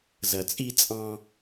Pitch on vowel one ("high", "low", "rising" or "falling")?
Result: low